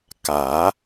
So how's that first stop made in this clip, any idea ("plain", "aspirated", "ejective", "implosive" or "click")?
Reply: plain